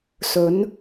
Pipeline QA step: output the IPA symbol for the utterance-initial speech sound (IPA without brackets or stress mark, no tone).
s